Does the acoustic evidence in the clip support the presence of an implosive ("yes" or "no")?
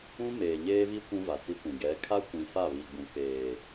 no